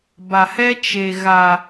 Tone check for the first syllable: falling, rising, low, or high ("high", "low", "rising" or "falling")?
low